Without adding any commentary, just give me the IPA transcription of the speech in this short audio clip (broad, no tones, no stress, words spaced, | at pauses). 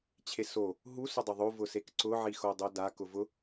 t͡ɕʰeso | ɦu sʊdˤʊðˤo vʊsekǀʊ ʕixodˤoda kʊvʊ